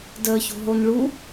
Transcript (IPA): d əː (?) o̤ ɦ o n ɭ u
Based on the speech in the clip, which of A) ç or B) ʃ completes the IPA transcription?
A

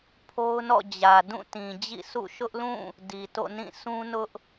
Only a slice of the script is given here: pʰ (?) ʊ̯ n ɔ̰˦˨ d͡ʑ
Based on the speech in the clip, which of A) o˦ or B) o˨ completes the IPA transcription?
A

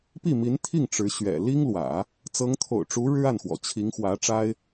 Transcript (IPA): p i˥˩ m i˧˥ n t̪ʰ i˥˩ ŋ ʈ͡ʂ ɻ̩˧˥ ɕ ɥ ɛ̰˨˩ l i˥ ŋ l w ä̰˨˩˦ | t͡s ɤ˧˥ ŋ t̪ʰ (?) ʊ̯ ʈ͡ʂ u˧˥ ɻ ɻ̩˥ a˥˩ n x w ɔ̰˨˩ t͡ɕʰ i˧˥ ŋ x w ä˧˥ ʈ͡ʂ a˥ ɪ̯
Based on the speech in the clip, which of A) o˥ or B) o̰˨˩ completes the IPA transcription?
B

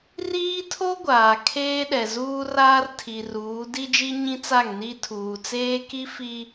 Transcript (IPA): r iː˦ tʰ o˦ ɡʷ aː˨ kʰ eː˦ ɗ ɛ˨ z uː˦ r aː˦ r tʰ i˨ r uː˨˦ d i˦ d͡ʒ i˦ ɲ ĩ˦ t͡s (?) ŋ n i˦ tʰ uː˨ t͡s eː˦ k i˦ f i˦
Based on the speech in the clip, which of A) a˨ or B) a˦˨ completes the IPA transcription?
B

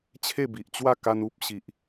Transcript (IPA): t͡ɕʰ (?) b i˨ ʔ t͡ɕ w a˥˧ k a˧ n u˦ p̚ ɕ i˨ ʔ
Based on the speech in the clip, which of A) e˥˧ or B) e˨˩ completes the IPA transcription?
A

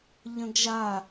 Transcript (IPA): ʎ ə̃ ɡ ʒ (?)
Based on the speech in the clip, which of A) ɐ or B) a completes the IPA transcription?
B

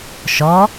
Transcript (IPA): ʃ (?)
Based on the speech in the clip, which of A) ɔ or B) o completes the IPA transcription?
A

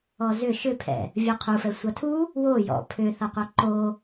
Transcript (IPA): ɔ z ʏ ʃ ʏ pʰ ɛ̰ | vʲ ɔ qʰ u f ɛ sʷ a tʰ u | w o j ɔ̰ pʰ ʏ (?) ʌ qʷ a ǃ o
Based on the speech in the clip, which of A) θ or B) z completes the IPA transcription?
A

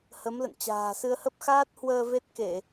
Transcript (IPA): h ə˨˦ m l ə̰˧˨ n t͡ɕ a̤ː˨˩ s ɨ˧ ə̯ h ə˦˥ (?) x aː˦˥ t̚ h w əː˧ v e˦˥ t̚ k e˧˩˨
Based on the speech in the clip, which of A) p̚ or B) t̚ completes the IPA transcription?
A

